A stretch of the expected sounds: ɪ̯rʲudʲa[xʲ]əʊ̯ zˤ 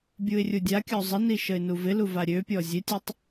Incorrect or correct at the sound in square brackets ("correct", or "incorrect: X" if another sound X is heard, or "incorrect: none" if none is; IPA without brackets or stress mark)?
incorrect: kʲ